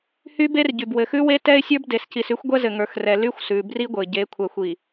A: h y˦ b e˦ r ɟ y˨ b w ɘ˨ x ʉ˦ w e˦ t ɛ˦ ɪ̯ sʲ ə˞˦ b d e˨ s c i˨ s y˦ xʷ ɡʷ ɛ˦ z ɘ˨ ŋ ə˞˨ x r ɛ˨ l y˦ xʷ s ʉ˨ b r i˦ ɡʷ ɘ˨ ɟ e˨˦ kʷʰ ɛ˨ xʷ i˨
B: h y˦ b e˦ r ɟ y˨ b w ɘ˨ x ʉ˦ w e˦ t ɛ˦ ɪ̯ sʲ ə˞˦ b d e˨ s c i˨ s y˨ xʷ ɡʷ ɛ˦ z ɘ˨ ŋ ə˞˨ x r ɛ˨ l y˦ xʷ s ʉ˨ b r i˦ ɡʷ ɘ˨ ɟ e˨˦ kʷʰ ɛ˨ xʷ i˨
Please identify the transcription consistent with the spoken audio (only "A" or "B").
A